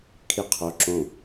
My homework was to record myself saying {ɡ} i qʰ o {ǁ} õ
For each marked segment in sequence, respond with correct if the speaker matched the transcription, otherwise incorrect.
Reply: incorrect: kʰ, correct

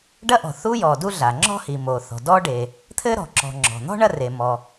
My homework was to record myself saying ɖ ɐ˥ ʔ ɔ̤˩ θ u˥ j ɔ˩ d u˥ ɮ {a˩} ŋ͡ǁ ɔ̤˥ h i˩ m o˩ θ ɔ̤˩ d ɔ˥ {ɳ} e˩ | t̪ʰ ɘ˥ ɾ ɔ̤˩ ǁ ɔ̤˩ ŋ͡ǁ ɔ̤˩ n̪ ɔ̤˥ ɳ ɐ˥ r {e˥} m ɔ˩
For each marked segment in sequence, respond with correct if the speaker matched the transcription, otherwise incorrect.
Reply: correct, incorrect: ɖ, incorrect: e˩

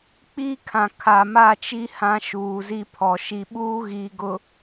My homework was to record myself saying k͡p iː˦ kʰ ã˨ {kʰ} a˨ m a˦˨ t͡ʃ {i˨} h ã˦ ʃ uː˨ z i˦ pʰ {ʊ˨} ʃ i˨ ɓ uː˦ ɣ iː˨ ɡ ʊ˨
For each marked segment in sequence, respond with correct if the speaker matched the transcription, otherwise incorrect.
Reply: correct, incorrect: i˦, incorrect: ɔ˨

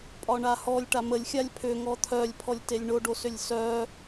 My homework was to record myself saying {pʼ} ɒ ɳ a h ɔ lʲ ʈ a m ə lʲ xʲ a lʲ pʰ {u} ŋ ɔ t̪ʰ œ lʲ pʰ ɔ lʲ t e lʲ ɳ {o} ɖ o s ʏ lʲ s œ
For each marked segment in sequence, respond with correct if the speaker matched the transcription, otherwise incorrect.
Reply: correct, incorrect: ʏ, correct

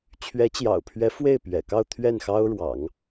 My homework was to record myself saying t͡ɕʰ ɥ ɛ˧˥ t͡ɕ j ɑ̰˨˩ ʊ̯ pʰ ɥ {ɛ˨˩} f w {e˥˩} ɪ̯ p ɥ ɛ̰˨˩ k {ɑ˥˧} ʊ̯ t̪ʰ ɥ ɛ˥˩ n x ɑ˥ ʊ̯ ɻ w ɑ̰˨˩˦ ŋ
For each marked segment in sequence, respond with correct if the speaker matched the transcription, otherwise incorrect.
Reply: incorrect: ɛ˧˥, correct, correct

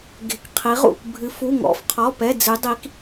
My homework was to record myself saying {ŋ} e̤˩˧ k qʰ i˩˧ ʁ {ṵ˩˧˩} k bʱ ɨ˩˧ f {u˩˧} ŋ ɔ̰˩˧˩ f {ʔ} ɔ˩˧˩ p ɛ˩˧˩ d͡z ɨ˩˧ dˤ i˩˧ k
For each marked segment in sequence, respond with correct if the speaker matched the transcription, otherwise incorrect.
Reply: incorrect: ɡ, correct, incorrect: u˩˧˩, incorrect: qʰ

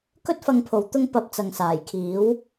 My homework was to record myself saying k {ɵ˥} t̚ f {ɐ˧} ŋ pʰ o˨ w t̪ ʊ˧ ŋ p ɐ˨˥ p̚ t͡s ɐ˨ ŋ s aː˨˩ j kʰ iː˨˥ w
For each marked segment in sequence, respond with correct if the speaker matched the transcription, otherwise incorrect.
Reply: correct, correct

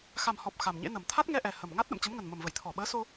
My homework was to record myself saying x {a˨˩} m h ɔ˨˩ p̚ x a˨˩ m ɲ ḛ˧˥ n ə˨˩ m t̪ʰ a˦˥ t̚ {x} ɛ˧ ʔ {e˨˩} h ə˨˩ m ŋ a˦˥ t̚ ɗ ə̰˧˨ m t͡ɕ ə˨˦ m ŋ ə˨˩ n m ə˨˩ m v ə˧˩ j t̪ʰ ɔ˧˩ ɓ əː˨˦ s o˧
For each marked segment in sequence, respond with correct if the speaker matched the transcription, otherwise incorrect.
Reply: correct, incorrect: ŋ, incorrect: ɛ˨˩

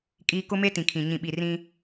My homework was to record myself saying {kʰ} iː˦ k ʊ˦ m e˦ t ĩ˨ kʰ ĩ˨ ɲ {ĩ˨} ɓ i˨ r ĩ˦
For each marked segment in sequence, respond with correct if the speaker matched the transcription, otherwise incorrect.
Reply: incorrect: kʼ, correct

